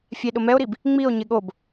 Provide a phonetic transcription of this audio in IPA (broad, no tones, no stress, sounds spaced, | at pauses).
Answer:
fʲ ɛ ɗ ʊ m ɛ o̯ ɾ i b | ŋ͡m i o̯ ɲ ɪ ɠ o b